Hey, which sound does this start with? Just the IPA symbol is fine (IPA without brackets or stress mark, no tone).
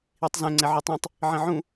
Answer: i